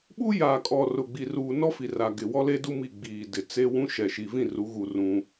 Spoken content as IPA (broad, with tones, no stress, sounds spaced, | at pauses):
ɓ u˦ j aː˨ kʼ ɔ˨ r ʊ˨ ɡ͡b i˨ r uː˨ n ɔ˦ f i˨ r a˨ ɡ ɪ˨ w ɔ˦ l e˦ d u˦ m i˦˨ ɡ͡b iː˨ d ɪ˨ t͡s e˦ w ũ˦ ʃ ɛ˨ ʃ i˨ v ĩ˦˨ r u˨˦ ɣ u˨ r ũ˦